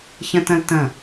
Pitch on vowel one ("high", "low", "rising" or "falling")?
high